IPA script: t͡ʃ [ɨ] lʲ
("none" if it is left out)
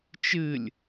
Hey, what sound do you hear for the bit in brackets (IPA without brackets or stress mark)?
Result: ɨ